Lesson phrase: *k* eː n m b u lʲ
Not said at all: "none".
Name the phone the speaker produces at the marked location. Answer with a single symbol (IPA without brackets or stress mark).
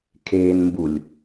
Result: kʰ